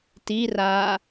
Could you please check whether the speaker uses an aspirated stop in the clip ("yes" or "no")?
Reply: no